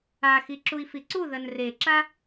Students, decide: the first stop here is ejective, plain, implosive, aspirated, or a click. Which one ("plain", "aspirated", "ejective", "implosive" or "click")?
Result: click